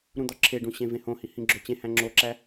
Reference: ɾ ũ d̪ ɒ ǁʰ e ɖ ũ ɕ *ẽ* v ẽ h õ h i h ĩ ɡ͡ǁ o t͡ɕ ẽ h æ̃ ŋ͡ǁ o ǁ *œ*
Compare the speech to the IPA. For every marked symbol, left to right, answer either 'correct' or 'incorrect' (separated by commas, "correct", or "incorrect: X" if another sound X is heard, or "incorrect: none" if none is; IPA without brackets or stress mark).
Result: correct, incorrect: æ